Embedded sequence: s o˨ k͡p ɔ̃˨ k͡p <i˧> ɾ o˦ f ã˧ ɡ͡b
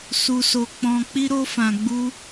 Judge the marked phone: correct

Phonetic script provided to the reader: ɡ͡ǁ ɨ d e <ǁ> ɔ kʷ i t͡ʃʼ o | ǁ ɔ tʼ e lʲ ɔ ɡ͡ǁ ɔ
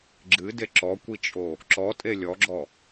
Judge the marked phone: correct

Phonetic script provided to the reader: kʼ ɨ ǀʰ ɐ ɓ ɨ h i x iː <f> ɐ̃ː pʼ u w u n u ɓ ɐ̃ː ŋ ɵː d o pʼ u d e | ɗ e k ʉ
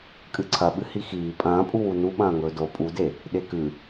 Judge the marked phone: incorrect: pʼ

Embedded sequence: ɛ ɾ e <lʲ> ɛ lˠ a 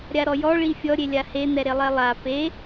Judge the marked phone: incorrect: lˠ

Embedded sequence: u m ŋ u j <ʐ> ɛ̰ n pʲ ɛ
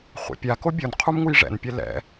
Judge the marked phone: correct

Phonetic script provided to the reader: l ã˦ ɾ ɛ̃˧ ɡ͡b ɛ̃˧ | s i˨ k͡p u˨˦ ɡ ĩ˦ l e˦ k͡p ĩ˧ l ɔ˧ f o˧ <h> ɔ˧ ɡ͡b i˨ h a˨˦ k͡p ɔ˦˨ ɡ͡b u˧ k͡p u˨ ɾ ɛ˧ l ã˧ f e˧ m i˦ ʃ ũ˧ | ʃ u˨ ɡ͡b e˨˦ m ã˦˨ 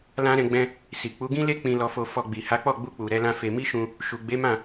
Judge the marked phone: incorrect: f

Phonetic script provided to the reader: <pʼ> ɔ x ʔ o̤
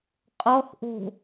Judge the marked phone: incorrect: qʼ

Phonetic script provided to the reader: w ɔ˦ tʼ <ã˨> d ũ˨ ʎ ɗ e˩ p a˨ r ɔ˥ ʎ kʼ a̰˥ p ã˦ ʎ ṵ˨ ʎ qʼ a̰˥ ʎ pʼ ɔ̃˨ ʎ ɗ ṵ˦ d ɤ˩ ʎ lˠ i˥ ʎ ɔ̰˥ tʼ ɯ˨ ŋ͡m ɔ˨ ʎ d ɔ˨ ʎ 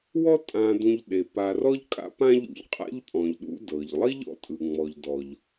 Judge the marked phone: correct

